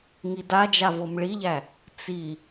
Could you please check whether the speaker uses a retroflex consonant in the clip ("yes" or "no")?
yes